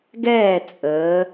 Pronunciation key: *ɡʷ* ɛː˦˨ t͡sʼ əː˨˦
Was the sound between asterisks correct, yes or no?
no